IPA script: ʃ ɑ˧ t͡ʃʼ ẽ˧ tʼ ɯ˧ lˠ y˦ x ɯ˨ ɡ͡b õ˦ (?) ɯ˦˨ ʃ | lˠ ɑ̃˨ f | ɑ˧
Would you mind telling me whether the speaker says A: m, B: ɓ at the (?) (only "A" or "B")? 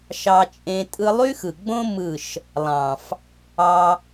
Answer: A